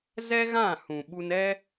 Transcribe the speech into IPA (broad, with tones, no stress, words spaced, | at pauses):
zɛ˦ɣã˦˨hũ˨ ɓu˧nɛ˦